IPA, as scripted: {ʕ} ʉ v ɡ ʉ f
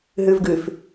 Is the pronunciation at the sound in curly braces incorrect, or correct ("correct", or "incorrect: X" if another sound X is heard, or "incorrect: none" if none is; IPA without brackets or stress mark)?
incorrect: ɦ